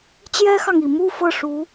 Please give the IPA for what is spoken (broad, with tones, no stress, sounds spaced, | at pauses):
t͡ɕ j ɛ˥ x ɑ˨ ŋ i˨˩ m u˥˧ f ɤ˥˩ ʂ u˧˥